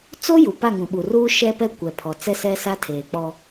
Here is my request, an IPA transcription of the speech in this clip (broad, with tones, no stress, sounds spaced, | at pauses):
t͡s o˦ j u˨ p a˦˨ ŋ ũ˨ ɓ u˨ r uː˦ ʃ ɛ˦ p ɛ˦ kʷ ɛ˨ pʰ ɔ˨ t͡s ɛ˦ s ɛ˦ s a˦ tʰ eː˨ k͡p ɔ˦